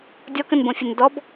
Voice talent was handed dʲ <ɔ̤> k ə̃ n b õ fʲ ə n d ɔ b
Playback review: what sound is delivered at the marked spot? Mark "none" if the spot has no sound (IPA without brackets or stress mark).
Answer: ɔ